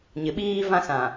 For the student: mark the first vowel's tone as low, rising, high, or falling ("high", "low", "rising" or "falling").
rising